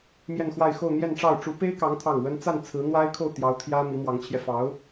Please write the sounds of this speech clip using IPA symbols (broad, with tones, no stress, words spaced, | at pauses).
mjɛ˥˧nxwa˥˧ɪ̯xo˥˧ʊ̯ n̪jɛ˥˧nʈ͡ʂɑ˥˩ʊ̯ ʈ͡ʂu˧˥pe˥ɪ̯kɑ˧˥ŋ t̪ʰɑ˥˩ŋwə˥n t͡sa˥˩nt͡sʰɹ̩˧˥ n̪wa˥ɪ̯ kʰo˥˩ʊ̯t̪jɑ˧˥ʊ̯ t̪ʰjä˥ mi˧˥mwɑ˧˥ŋt͡ɕʰjɛ˧fɑ˧˥ʊ̯